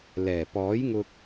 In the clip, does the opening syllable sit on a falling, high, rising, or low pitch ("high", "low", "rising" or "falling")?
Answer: low